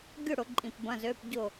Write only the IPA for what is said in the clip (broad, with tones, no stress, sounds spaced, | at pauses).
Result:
ɡʲ ʊ˥˨ ɽ ʊ˧˩˧ ǃʼ ĩ˧˩ p b ɐ̃˧˥˧ z ø˧˥˧ p ɟ ʊ˥˨